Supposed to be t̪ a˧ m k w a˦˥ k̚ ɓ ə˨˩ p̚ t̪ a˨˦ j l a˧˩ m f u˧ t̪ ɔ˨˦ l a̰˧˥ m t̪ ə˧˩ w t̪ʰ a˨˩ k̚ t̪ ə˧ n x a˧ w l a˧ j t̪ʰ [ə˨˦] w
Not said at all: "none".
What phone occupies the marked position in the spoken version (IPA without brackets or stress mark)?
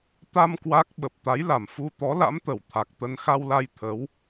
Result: ə˨˦